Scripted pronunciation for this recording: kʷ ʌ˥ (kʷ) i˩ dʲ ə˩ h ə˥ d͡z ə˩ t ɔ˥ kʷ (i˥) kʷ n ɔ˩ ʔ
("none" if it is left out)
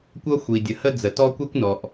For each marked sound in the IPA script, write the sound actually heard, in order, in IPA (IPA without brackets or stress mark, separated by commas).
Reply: xʷ, i˥